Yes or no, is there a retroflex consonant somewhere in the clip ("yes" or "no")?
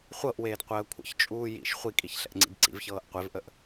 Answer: no